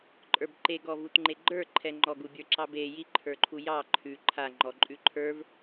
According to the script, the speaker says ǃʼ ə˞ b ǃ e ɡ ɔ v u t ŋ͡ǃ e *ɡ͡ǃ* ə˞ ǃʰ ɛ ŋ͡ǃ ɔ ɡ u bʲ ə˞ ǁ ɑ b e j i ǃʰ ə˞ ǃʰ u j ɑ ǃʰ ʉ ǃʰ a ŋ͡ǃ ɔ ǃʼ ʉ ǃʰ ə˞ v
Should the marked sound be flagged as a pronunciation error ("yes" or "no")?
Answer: no